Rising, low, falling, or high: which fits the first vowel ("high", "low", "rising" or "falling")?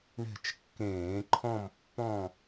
falling